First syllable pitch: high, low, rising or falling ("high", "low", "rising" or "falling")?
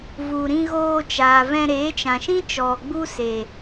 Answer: low